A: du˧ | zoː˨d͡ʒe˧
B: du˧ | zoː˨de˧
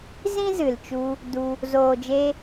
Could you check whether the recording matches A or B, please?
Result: A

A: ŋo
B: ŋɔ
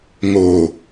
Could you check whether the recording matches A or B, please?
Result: A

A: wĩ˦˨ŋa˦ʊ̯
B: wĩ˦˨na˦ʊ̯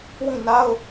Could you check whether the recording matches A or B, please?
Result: B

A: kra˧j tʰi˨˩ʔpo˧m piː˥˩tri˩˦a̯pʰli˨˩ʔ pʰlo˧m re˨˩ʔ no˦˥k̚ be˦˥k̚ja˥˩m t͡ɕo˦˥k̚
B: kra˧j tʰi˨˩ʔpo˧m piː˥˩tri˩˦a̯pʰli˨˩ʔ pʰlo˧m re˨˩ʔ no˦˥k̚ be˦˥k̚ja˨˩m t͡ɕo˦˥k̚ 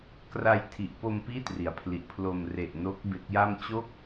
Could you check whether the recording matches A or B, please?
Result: A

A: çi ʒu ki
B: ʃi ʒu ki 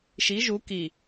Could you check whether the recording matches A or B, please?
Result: B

